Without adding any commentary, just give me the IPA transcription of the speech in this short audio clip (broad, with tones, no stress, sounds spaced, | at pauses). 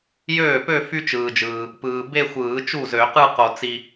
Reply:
j øː˥˩ p ø˥˧ f y˥ t͡ʃ ɯː˨ d͡ʒ ɯː˨ | p ɯː˨ b e˥˧ xʷ ɯː˨˩˦ t͡ʃ u˥˩ z ø˨˩˦ q ɯ˥˧ q o˨ t͡s i˨